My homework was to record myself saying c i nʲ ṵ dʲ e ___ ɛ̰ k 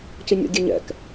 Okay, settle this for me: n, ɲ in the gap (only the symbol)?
ɲ